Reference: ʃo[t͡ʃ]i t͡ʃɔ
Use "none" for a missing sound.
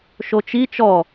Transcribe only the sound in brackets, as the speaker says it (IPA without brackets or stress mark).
t͡ʃ